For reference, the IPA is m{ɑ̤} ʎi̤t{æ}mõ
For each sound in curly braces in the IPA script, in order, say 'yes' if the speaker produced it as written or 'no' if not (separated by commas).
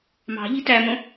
yes, yes